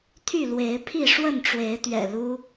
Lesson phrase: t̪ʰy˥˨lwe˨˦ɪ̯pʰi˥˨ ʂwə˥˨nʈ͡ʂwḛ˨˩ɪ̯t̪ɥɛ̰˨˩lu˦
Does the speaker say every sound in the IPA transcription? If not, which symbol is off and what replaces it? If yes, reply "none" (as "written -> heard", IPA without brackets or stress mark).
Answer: ḛ˨˩ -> e˨˦